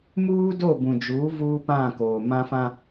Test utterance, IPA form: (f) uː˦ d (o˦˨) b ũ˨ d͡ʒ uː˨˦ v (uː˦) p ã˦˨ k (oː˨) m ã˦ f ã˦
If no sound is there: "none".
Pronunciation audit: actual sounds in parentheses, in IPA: m, o˦˨, uː˦, oː˨

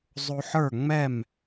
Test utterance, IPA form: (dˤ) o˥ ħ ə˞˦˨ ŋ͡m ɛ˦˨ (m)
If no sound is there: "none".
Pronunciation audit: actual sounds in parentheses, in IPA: zˤ, m

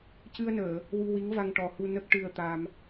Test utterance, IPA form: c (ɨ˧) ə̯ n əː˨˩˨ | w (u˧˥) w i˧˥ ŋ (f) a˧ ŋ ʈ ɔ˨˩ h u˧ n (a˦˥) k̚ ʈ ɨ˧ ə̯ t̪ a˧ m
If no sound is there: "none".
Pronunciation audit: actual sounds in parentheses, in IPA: ɨ˧, u˧, v, ə˦˥

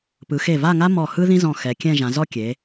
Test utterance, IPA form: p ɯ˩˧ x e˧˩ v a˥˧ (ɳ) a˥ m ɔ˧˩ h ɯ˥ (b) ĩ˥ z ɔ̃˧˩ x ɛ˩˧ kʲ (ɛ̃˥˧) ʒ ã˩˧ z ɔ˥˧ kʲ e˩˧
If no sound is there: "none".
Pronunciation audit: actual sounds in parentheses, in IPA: ŋ, ð, ɛ̃˥˧

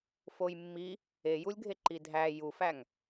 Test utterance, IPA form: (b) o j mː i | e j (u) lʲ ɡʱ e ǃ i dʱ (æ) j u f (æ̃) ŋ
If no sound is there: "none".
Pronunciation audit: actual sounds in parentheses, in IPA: f, u, æ, æ

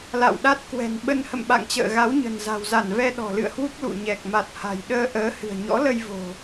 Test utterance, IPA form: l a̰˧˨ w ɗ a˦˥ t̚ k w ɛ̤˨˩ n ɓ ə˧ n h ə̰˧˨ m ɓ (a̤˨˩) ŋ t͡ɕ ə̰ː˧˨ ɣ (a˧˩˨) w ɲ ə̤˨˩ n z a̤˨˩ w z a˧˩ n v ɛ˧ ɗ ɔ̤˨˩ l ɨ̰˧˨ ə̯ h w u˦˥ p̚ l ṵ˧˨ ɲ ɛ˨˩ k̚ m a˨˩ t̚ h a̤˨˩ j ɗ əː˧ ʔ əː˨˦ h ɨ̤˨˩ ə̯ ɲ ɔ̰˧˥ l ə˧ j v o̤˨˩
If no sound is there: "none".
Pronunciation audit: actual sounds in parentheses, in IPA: a̰˧˨, a˨˦

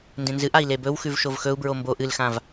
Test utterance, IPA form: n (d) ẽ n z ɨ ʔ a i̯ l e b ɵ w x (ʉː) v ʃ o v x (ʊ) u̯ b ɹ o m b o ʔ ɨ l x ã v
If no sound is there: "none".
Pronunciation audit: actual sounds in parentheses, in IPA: d, ʉ, ɵ

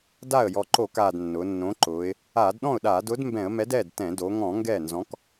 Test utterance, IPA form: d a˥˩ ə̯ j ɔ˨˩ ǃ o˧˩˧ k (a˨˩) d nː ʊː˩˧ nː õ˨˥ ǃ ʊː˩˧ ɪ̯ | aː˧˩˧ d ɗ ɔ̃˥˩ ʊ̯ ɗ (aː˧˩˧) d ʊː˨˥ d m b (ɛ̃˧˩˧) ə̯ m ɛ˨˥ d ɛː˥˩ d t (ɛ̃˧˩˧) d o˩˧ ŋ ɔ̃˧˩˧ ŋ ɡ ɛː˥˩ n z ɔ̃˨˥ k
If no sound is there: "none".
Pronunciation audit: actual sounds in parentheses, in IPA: aː˨˩, aː˧˩˧, ɛ̃˧˩˧, ɛ̃˧˩˧

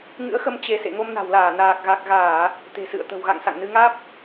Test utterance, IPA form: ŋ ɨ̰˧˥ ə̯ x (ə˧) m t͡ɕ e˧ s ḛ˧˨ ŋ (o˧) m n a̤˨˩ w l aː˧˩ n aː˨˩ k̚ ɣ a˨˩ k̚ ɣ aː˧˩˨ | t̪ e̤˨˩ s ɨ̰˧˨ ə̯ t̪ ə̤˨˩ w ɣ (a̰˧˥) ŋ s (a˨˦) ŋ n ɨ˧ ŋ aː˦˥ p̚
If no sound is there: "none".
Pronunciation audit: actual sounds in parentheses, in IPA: ə˧, o˧, a̰˧˨, a̰˧˨

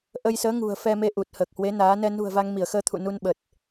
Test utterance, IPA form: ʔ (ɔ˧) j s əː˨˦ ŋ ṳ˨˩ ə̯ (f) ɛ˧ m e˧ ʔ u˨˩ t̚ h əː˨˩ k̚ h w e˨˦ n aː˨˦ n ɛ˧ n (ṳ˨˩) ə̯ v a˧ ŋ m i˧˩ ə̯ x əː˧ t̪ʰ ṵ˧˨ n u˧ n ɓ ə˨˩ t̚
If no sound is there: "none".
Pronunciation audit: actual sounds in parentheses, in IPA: ə˧, f, ṳ˨˩

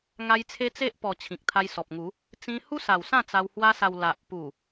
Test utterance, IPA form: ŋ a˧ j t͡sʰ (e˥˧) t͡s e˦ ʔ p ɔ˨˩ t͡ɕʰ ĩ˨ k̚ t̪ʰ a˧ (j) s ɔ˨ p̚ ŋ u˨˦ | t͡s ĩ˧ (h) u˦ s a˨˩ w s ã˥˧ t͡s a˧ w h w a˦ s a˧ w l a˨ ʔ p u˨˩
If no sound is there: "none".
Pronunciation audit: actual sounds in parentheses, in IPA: e˧, j, h

